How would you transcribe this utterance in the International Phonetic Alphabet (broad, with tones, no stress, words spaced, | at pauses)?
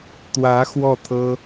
t̪wä˧˥ xwɔ˥˩t̪ʰɤ˥